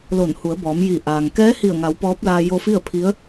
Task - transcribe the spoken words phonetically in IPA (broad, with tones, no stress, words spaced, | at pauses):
lo˧˩nhu˩˧ə̯bɔː˩˧m ji˧˩ʔaː˩ŋ kɛː˧˥hi˧˩ə̯ŋa˩˧w pɔː˧˥p̚laː˧ jo˧fi˥˨ə̯pʰi˧˥ə̯